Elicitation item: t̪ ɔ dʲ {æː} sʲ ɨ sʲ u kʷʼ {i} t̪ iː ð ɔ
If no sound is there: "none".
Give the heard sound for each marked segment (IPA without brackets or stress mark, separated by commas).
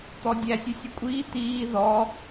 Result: æ, iː